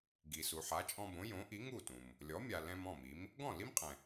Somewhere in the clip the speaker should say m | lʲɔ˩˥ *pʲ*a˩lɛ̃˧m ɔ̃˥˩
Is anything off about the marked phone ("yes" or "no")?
yes